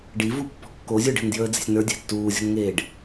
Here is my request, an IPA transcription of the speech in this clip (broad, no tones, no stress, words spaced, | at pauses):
ɖivu pːɔ̤kːozʲə˞ɖ e̤ndjəːd͡ze̤sʲnə˞ dʲæ̤tːuːzʲo̤nŋeːɖ